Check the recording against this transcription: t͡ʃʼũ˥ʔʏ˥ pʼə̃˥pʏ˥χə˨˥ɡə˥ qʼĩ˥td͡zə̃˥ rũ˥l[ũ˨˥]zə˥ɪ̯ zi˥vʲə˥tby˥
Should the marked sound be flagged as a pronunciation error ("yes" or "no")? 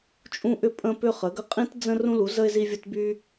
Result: yes